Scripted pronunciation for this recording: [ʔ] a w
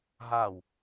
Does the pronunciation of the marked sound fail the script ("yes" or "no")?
yes